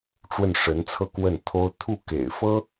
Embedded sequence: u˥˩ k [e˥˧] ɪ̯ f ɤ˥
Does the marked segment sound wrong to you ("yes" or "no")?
yes